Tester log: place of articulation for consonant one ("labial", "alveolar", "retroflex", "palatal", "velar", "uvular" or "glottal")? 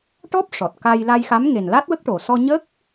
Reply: retroflex